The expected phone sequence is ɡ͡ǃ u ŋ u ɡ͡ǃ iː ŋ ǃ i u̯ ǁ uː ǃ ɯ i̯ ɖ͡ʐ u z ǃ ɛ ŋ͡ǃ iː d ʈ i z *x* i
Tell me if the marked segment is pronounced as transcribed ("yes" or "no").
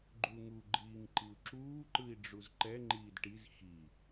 yes